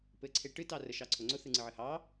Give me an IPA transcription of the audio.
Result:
p ɘ ǀʰ e ʈ ɨ t ɑ r ə ʃ ɑ ǀʰ ʊ ŋ͡ǀ ʊ θ ɨ ŋ͡ǀ ɨ ʕ ɘ h ɑ

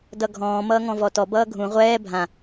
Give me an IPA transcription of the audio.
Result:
d ʌ ɡʱ ɔ̃ː m ʌː ŋ ɔ̃ v ɔ t ɔ b ʌː ɡʱ ũ ʁʷ ɛː bʱ ã

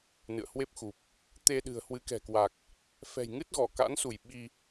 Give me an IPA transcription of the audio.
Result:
n ɨ̰˧˨ ə̯ h w e˦˥ p̚ x u˨˩ p̚ | t̪ e˧ ɗ ɨ̤˨˩ ə̯ h w ɨ˨˦ k ɛ̤˨˩ k w a˨˩ k̚ | f ɛ̤˨˩ j ŋ ɨ˦˥ t̚ ɣ ɔ˧˩ k a̰˧˥ n s u˧˩ j ɓ i˧

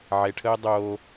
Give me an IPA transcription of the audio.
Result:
ʕ e ʈʰ əː dˤ oː

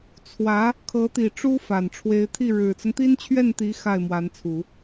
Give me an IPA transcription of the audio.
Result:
t͡sʰ w ä˧˥ | kʰ ɤ˧˥ t̪ i˨˩ ʈ͡ʂ u˥ f a˨˩ n ʈ͡ʂʰ w e˧˥ ɪ̯ t̪ʰ i˥˩ ɻ ɻ̩˨˩ t͡s ʊ˦ ŋ t̪ i˥ n t͡ɕʰ ɥ ɛ˥˩ n t̪ i˧˥ x a˥˩ ɪ̯ m w a˧˥ n t͡sʰ u˨˩˦

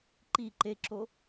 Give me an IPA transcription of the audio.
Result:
ǃ i ǃ e ǁ o

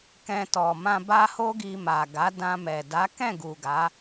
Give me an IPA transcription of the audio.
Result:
k ɛ̃˧ t ɔ˨ m ã˨ b a˧ h o˧ ɡ i˨ m a˨ ɡ a˨˦ d ã˧ m ɛ˨ d a˨˦ k ɛ̃˦˨ ɡ u˨ ɡ a˨˦

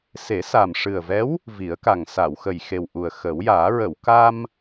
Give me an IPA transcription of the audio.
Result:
s e˨˩˦ s a˨˩ m ʂ ɨ˨˩ ə̯ v ɛ˧˥ w | v i˨˩˦ ə̯ k a˨˩ ŋ s a˨˩˨ w x ə˨˩ j x e˨˩ w ʔ u˨˩ ə̯ x ə˨˩˦ w j aː˨˩˦ ɹ ə˨˩˨ w k a˧ m

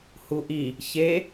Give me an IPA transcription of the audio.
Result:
h u ʔ i | ç e

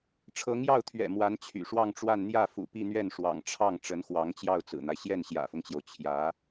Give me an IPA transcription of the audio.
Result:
ʈ͡ʂʰ ɤ˧˥ ŋ j ɑ˥˩ ʊ̯ t̪ʰ ɥ ɛ̰˨˩ m w a˧˥ n t͡ɕʰ y̰˨˩ ʂ w ɑ˥˧ ŋ ʈ͡ʂ w a˥˧ n n̪ j ä˥˩ f ṵ˨˩ p i˥˧ n̪ ɥ ɛ˥˩ n ʂ w ɑ̰˨˩ ŋ ʈ͡ʂʰ ɑ˥˩ ŋ ʈ͡ʂ ə˧˥ n x w ɑ˧˥ ŋ t͡ɕ j ɑ˥˩ ʊ̯ t͡s ɹ̩˨˩ n̪ a˦ ɪ̯ ɕ j ɛ˥˩ n ɕ j ä̰˨˩ f ʊ˦ ŋ t͡ɕ j o˩ ʊ̯ t͡ɕʰ j ä˧˥

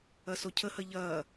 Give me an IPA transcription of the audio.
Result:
ɐ s o cʰ ə h ɐ ʎ ɐː

